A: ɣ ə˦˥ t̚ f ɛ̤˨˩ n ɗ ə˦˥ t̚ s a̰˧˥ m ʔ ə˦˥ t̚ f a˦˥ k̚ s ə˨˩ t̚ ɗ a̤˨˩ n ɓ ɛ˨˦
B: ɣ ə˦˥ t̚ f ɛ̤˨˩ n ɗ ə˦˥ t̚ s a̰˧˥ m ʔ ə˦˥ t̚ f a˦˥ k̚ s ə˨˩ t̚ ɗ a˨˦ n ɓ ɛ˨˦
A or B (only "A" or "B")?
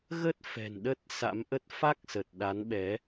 B